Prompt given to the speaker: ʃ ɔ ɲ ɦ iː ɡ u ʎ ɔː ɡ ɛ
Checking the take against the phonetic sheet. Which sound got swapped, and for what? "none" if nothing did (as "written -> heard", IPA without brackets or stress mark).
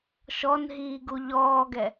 ɲ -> n